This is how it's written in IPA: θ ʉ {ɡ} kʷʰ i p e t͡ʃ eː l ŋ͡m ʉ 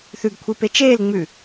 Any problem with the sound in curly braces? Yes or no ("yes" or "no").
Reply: no